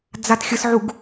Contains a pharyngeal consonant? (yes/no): yes